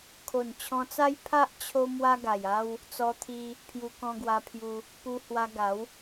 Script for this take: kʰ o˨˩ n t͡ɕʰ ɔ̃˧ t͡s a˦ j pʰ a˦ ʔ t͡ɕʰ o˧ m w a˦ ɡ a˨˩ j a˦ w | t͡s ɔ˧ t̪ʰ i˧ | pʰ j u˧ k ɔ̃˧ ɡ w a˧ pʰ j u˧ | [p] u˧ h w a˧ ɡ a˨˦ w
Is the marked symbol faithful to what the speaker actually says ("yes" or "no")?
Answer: yes